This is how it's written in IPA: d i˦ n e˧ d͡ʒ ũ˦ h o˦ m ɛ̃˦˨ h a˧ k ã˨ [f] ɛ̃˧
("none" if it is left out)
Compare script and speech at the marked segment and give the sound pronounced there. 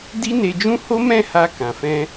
f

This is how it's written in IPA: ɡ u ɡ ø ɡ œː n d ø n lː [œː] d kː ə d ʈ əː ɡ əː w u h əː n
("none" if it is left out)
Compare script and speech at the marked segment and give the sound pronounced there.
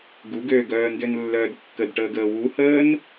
œː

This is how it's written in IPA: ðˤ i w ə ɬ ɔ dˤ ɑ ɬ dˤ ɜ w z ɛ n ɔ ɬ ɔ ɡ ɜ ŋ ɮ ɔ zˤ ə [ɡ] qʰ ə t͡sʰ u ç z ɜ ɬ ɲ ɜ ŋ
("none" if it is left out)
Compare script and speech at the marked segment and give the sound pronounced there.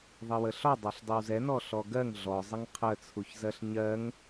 ŋ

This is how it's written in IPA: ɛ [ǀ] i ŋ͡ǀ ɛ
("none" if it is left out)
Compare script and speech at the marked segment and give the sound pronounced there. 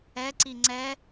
ǀ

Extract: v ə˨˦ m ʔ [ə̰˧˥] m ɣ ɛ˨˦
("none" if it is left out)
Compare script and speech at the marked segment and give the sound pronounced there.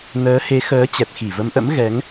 ə̰˧˥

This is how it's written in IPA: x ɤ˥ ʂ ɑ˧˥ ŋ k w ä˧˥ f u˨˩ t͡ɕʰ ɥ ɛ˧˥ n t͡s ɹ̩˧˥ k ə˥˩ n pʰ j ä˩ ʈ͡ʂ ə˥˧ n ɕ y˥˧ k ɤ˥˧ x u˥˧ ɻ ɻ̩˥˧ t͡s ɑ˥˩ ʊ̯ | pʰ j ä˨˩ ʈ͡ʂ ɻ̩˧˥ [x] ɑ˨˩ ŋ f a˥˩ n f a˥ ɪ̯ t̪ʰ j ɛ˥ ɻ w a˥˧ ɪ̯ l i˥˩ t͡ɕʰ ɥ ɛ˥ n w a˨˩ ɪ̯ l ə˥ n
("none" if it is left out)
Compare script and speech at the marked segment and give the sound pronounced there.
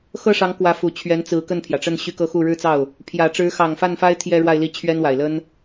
x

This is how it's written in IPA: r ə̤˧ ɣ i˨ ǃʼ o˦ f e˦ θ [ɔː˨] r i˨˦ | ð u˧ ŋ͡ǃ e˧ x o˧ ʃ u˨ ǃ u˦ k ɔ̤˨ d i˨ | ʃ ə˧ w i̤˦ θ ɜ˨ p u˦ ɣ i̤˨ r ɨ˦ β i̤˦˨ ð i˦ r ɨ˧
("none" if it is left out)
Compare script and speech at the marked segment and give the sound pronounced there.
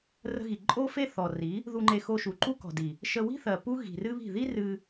ɔ˨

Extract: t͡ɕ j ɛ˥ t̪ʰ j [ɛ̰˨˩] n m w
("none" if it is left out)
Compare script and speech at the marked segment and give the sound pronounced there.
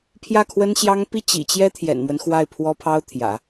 ɛ̰˨˩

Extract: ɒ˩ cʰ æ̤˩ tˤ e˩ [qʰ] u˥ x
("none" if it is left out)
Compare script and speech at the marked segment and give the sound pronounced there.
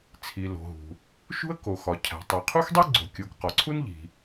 qʰ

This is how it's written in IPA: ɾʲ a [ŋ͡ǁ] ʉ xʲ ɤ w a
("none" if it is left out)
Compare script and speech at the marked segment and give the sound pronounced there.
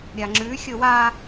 ŋ͡ǁ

